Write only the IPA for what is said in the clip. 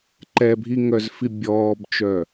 ǃ ɛ bʱ i ŋ œ z f i bʲ ɔː b t͡ʃ œ

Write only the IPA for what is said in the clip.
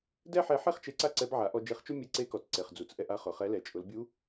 d ɛ˥ ħ ɛ˧˥ ħ e˥ χ t͡ʃ e˧ ǀ a˥ ǀ ɛ˧˥ b ʕ a˩˧ ʔ ɔ˧ d͡ʒ e˧ χ t͡ʃ u˥ mʲ e˧˥ ǀ e˧˥ k ɔ˩ t͡s ǀ e˩ χ d͡z u˩ t͡s ʔ ɛ˧ ʔ a˧˥ χ ʊ˩ χ ɛ˧˥ l ɛ˩ t͡ʃʼ ʊ˩˧ l bʲ u˧˥

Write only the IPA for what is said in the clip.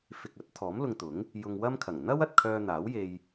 f ɪ˨ k̚ ɐ˨˥ t̚ t̪ʰ ɔː˨˥ m l ʊ˧ ŋ t̪ ʊ˨˥ ŋ | j ʊ˧ ŋ w ɐ˥ m kʰ ɐ˨˩ ŋ n̪ ɐ˥ w ɐ˨ t̚ kʰ œː˧ n̪ aː˨˥ w j e˧ j

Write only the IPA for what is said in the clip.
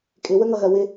kʼ ɪ w ə ŋ ʌ ɣ ɜ w ɪ

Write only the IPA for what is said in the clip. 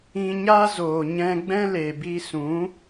ĩ˧ ɲ a˦ z oː˨ ɲ ɛ̃˧ ɡ͡b ɛ̃˦ l e˨ b i˧ s ũ˨˦

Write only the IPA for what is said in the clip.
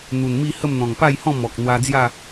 n̪ u˨˩ n m i˥˧ h ə˥˧ m n̪ ɔ̃˨˩ ŋ p a˥˧ j h ɔ̃˥˧ m ɔ˨ k̚ n̪ w a˧ d͡z j a˥˧

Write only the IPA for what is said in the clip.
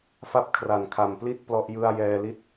f a˥˩ p̚ kʰ r a˨˩ n kʰ a˨˩ m p l i˥˩ t̚ p l ɔ˦˥ ʔ j ɯ˥˩ a̯ j ɛː˧ l i˥˩ t̚

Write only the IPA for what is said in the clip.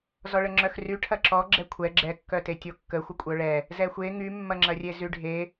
z ɔ ɭ ə ŋ͡ǁ œ x r y ʈʰ ɐ ǁ ɔ ɡ͡ǁ ɛ kʷʰ ɛ ɡ͡ǁ ɛ kː œ t e tʲ o kː ə xʷ ə kʷʼ œ ɭ ɛ | z ɛ xʷ e ŋ y mː ɐ ŋ͡ǁ ɐ rʲ e z y ɖʱ e

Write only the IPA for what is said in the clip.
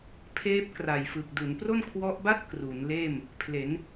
pʰ eː˦˥ p̚ k r a˨˩ j f ɯ˨˩ k̚ d u˩˦ n p r o˥˩ n kʰ w ɔ˦˥ ʔ b a˥˩ t̚ k r u˩˦ n l eː˥˩ m | pʰ l e˩˦ n

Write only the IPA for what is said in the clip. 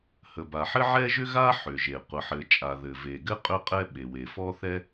h ə˩ b a˩ ħ ɘ˥ ʕ ɛ˥ ʒ ʏ˥ ɣ a˥ ħ ʏ˩ ʒ e˩ qʷ ə˩ ħ ɘ˩ t͡ʃʼ a˩ ð ɘ˩ v e˩ ɡ ɘ˥ qʼ ʏ˥ qʼ ɛ˥ ɓ e˩ w e˩ f ɔ˥ θ ɛ˥

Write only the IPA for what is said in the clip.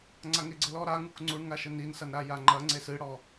ŋ͡ǀ a ŋ e ɡ͡ǀ ɘ l ɔ ɾ a ŋ u k ŋ͡ǀ u ɳ ŋ a ʃ ɘ n i n s ɐ n ɾ a j a ŋ͡ǃ ɐ ŋ͡ǀ e s ɨ ɽ ɔ

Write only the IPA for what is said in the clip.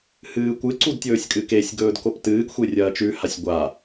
h ɨː kʷ ɨ ǀ u d tʲ ɵː sʲ kʼ ɨ k e sʲ ɡ ɵː d k o p t ɨː ɡ xʷ e rʲ ɐː t͡ʃ ʉ h a sʲ ɡʷ a

